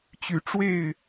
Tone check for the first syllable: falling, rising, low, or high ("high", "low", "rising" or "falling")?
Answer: rising